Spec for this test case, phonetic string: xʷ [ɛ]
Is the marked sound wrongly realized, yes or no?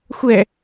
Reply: no